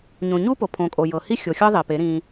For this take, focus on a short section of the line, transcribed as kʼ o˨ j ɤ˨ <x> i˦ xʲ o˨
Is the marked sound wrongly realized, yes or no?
yes